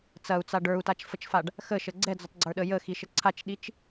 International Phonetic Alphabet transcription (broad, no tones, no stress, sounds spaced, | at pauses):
t͡s ɐ u̯ t͡s a ɖ ə˞ u̯ t a t͡ʃ f ə t͡ʃ f a ɖ | x ə ʃ ə ɡ͡ǀ ɛ d͡z ə tˤ ɡ͡ǀ ə˞ ɗ ə j ə x i ʃ ə ǀʰ a t͡ʃ ɗ i t͡ʃ